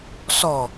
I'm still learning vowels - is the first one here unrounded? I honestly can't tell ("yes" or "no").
no